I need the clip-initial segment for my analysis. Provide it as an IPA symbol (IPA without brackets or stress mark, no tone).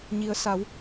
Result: ɲ